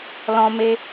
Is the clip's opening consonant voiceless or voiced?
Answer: voiced